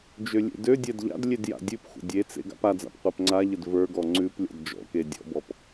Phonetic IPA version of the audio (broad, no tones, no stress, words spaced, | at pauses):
d͡ʒølʲḛdødʲɛd ʎa̰dlʲed ja̰dʲʉpxʷə̰ dʲet͡sḛ ɡa̰pad͡za̰p qʷɛpŋ͡ǀaʎəd və˞ɡɔ ŋ͡ǀʉp lʲɔ̰dd͡ʒɔ̰ke dʲɔ̰bɔp